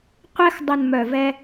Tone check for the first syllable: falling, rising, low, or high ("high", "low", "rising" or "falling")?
high